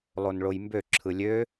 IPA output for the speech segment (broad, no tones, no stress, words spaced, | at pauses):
lˠonɭojmbø ǁʰɯlʲø